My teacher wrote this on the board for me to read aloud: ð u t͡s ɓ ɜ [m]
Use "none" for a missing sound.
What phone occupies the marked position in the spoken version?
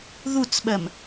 m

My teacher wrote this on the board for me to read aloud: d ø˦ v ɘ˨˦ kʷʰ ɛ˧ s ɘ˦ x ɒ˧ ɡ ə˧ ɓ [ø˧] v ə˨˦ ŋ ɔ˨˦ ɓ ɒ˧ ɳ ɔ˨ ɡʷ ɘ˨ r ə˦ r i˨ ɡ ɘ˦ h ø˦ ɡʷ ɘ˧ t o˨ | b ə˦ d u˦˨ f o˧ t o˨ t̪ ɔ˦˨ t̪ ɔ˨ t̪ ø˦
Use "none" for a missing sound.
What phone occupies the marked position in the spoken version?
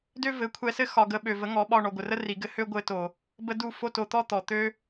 ø˨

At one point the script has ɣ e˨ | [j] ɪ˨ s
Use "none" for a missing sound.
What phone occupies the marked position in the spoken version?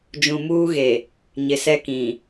ɲ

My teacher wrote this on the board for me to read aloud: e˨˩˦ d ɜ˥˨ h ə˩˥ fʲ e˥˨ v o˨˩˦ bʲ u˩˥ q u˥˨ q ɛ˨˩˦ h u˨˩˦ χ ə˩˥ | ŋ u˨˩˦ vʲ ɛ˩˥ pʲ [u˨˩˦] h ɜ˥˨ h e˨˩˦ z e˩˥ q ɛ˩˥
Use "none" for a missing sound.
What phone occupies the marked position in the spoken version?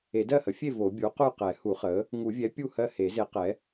u˥˨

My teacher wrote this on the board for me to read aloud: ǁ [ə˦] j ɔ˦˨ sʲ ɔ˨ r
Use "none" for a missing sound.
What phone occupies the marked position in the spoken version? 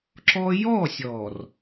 ɔ˦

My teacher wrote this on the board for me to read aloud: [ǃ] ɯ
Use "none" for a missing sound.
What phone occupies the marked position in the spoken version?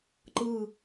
ǃ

